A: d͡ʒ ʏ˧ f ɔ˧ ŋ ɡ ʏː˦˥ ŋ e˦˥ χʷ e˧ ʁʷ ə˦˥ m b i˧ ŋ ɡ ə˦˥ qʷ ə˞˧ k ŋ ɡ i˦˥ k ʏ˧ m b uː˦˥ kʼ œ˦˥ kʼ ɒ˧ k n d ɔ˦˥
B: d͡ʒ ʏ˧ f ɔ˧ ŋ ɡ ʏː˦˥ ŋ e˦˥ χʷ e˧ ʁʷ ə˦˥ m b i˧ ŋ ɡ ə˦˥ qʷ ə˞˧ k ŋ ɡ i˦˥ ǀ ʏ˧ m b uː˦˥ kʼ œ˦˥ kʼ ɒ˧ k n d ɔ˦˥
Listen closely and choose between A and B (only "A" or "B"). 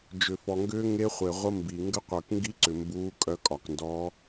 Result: B